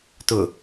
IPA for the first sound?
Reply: t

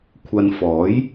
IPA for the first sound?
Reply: kʷʰ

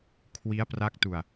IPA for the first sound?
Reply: kʰ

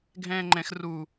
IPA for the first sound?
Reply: ɡʱ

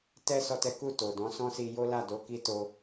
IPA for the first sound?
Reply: t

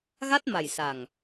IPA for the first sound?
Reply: ɣ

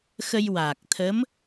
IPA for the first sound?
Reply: x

